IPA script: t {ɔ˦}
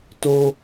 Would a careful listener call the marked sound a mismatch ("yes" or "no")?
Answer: yes